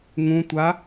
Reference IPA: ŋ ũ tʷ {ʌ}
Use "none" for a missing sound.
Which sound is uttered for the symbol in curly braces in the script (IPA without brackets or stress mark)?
a